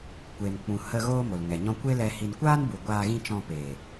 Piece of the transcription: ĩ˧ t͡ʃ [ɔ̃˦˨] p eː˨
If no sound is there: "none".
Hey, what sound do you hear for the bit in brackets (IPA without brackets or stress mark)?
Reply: ɔ̃˧